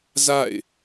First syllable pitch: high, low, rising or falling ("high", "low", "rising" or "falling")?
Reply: falling